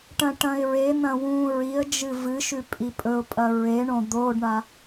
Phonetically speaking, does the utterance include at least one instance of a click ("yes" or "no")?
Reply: no